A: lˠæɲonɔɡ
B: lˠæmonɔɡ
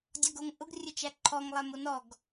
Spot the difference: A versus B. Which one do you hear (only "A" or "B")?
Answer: B